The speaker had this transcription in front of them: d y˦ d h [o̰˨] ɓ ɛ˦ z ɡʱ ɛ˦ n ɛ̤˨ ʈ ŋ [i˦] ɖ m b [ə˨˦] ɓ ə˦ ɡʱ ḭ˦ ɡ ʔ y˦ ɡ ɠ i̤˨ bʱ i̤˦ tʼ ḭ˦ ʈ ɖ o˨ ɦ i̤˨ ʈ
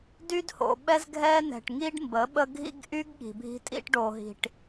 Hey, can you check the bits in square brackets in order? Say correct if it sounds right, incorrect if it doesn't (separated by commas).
correct, correct, correct